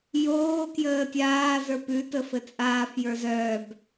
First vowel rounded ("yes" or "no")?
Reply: yes